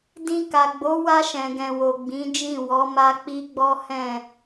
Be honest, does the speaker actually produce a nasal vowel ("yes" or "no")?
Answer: yes